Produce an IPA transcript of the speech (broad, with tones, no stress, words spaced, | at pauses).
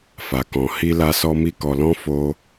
fa˨kɔ̃˨ hi˧la˧sɔ˧ mi˦kɔ˧ lɔ̃˦ fo˦